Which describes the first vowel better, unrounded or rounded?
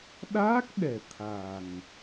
unrounded